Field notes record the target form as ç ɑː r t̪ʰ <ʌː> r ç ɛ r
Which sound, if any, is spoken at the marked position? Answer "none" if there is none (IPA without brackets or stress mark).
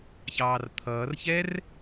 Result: ʌː